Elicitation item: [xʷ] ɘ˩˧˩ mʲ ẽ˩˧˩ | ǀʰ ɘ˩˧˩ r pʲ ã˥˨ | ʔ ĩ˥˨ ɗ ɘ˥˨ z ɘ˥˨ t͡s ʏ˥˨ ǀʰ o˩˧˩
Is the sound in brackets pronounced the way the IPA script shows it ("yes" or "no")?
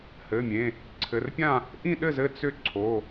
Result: no